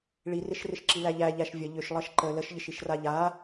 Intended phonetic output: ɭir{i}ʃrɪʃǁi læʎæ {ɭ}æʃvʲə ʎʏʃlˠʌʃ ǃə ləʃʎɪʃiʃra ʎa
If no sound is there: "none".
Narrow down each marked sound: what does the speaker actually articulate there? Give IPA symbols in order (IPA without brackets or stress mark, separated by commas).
ɪ, ʎ